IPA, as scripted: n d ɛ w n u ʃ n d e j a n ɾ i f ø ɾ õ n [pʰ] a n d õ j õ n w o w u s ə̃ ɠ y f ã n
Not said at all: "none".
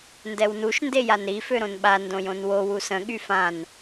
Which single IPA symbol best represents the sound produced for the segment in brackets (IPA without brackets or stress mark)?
ɓ